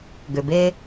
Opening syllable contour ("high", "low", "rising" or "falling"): low